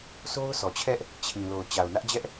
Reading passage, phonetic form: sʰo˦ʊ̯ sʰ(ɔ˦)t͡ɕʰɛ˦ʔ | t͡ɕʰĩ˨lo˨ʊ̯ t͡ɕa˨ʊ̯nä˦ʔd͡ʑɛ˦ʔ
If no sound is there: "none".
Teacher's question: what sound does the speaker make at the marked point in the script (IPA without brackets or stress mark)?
ɔ˨